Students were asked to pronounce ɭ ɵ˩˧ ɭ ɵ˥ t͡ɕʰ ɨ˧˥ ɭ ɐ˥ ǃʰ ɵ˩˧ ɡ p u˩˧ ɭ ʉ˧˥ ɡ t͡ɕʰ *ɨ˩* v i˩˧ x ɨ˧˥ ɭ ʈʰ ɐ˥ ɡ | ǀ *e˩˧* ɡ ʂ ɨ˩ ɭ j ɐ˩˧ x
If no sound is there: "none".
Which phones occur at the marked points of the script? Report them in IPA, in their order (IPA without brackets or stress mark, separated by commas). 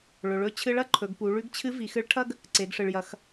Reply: ɨ˧˥, e˩˧